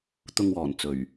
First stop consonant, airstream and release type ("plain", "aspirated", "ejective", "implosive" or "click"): plain